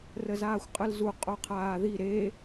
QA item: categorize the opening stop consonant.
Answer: ejective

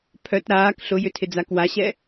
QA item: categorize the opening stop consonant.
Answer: aspirated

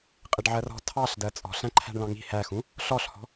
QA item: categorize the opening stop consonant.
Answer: ejective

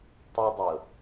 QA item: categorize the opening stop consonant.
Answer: plain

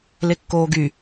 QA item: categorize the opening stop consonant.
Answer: plain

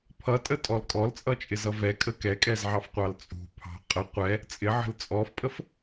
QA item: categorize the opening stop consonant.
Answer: aspirated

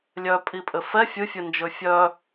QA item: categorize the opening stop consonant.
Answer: ejective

